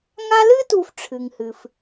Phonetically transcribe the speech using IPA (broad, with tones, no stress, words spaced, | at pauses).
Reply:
ŋa˦lɨ˥tu˨fʈ͡ʂʰɨ˩ŋ hɨ˩f